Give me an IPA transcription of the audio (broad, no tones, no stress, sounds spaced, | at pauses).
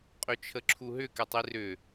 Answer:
qʼ ø t͡ʃʰ ə ǁʰ u ɦ ʏ k ɛ tˤ i r ʏ